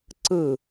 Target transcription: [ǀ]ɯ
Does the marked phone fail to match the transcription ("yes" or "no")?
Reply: no